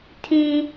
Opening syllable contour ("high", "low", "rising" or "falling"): high